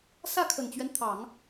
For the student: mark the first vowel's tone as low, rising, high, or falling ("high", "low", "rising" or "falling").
falling